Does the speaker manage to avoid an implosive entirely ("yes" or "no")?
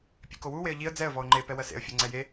yes